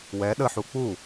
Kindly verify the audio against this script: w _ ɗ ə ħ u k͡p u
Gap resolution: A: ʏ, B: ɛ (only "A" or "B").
B